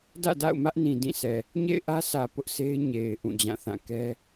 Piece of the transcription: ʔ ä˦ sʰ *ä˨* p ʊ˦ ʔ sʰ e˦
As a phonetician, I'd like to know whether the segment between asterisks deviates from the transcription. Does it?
no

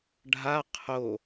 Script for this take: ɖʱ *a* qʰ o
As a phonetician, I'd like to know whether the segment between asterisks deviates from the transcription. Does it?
no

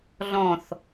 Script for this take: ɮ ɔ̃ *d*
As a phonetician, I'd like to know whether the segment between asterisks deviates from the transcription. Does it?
yes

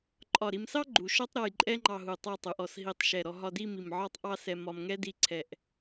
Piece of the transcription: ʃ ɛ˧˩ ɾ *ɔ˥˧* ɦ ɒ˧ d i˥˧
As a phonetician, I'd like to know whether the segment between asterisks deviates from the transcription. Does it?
yes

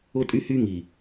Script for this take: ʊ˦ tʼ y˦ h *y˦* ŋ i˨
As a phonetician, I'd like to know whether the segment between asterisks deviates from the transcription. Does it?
no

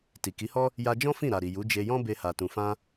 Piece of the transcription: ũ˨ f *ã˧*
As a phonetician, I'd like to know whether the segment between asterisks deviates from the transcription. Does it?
no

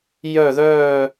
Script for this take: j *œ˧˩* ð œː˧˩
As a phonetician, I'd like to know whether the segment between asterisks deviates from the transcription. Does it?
no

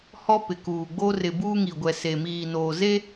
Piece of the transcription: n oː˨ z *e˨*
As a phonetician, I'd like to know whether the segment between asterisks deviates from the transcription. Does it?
yes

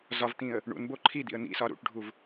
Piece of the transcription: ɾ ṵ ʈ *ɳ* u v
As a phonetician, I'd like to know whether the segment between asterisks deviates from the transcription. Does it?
yes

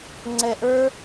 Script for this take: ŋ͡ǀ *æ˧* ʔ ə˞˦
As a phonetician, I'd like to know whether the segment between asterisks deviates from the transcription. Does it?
yes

